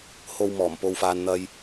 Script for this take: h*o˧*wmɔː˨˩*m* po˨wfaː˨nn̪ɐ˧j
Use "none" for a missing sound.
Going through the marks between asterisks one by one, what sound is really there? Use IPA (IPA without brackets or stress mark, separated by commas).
o˧, m